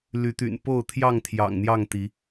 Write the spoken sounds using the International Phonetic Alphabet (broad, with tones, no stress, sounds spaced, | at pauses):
l y˨˦ t̪ y̰˨˩ n p o˥˨ ʊ̯ t̪ʰ j ɑ˥˨ ŋ t̪ʰ j ɑ̰˨˩ ŋ n̪ j ɑ˥˨ ŋ t̪ i˨˦